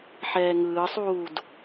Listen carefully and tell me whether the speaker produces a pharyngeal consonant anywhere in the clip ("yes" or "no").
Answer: yes